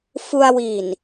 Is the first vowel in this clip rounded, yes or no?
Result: yes